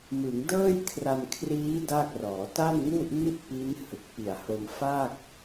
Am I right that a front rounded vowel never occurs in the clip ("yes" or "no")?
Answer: yes